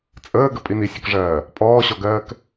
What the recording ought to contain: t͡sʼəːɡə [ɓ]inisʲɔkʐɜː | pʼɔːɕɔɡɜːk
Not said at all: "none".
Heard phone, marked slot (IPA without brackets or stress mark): pʼ